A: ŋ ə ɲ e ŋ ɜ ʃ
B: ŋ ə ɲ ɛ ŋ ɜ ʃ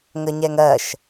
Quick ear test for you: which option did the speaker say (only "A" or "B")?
B